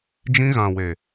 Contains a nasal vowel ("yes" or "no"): yes